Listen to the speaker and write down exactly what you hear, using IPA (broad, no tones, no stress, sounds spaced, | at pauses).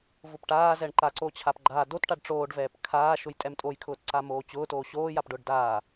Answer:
v ʊ p ʈ aː z ɛ ɳ ǃ a ǀ o t͡ɕʰ a p ɡ͡ǃ aː d o t ʈ a ɖ ʈ͡ʂ oː ɖ v ɛː p kʰ aː ʃ ʊ j tʼ ɛ m tʼ o j kʰ ʊː t ǀ a m oː t͡ɕ ʊː t oː ɕ oː j a p ɖ ʊː ɖ d aː